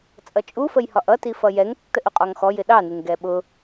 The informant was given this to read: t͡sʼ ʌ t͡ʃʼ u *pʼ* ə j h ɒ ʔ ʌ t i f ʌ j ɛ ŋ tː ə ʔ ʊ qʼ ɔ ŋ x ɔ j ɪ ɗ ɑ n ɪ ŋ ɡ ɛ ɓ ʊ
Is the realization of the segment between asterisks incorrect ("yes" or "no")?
yes